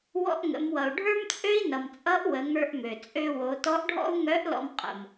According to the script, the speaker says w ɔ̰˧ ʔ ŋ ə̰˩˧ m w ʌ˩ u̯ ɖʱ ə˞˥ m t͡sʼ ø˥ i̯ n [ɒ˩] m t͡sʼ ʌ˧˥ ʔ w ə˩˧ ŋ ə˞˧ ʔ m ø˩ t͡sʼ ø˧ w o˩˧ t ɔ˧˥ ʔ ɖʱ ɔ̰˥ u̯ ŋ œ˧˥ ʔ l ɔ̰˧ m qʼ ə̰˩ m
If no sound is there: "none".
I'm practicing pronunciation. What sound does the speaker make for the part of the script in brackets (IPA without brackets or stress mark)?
ʌ˩